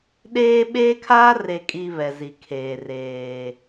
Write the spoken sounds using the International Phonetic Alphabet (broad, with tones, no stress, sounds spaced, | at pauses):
ɗ eː˦ ɓ eː˦ kʰ aː˦ r e˨ kʼ i˨ β ɛ˨ z i˨ kʰ eː˨ r eː˨